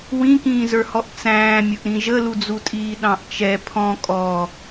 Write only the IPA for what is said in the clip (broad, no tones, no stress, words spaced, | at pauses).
wĩkĩːzə˞hɔʔ t͡sæ̃ːmʲʊʔɾĩ ʒəlud͡zutʼiː ɗɑ̃ʔt͡ʃɛ pʰɔ̃ kʼɔ